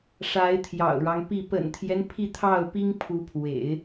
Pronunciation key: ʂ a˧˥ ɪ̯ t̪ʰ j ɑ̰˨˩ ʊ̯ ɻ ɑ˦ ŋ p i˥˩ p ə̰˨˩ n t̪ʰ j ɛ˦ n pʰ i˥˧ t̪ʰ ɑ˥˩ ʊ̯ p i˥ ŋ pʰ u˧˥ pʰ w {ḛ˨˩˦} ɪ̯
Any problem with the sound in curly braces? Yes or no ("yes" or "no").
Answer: no